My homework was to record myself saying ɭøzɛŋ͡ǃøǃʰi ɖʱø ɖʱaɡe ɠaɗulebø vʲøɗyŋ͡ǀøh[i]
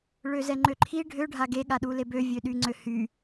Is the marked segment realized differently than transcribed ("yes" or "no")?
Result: yes